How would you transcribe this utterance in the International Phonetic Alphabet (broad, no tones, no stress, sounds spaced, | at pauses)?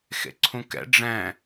x ḛ ǀʰ ũ k ɛ̰ ɖ͡ʐ ɛ̃